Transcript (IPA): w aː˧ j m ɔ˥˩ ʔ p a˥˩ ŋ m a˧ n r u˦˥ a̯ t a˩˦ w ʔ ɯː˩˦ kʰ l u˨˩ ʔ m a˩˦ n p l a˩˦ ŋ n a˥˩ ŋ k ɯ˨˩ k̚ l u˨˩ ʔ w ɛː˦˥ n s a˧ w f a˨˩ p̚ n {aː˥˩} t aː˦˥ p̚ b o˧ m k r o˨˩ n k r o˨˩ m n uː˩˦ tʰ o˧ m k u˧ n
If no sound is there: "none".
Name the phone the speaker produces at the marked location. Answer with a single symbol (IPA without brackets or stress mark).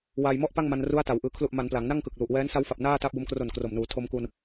aː˥˩